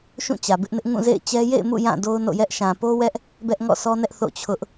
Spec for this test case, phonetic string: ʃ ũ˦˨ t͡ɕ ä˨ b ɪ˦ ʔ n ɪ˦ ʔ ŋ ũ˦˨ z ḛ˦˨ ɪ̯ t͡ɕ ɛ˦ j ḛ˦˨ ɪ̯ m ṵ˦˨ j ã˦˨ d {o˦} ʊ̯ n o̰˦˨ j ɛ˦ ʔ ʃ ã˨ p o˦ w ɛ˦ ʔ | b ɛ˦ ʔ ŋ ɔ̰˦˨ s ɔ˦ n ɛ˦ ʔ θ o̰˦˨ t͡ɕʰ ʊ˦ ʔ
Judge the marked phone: correct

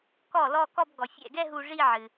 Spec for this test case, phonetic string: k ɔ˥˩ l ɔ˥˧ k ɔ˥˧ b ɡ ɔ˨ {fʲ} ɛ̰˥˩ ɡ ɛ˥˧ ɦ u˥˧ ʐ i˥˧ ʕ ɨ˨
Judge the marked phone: correct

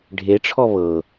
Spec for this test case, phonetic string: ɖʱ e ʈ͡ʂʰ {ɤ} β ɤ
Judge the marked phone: incorrect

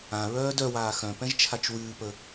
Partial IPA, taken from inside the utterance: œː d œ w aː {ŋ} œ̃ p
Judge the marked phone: incorrect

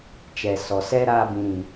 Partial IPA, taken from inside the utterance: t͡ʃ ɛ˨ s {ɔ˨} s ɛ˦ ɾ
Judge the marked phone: correct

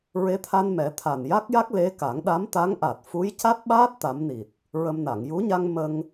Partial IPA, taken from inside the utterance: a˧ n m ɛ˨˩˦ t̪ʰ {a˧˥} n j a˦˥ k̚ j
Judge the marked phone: incorrect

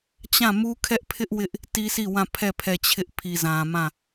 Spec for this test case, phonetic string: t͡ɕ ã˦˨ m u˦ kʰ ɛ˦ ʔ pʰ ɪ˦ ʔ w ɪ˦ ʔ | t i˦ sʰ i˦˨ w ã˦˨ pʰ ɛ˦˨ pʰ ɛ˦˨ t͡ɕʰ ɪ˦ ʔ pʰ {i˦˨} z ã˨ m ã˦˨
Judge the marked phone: incorrect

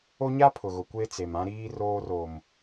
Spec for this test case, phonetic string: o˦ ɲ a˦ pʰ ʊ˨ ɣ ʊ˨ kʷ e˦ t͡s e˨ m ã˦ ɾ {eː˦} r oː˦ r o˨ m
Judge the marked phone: incorrect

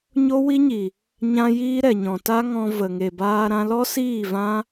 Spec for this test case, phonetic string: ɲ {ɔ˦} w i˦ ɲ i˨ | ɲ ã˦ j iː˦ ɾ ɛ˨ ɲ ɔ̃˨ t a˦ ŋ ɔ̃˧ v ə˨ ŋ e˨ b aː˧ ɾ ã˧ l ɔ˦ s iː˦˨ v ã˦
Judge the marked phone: incorrect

